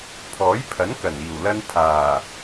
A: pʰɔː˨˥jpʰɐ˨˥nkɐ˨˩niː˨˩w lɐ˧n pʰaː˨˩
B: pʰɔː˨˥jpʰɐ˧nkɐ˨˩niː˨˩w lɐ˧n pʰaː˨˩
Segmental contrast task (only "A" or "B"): A